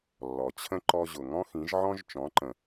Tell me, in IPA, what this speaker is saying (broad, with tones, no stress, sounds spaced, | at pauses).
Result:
lː ɔ˩ t͡ɕʰ ə̃˥ ǃ ɔ˧ ʑ ʊ˩ ŋ ɔ̃˥ x ĩ˩˥ ʒ ʕ ɔ̃˥ ʒ t͡ʃ ɔ̃˩˥ ǃ ə̃˩